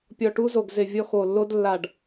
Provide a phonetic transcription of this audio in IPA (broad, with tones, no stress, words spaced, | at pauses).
pʲɔ˧˩ʈu˦˥zo˧˩ɡ zɪ˧˩ vʲɔ˦˥x o˧˩lːo˦˥d lːa˧˩ɖ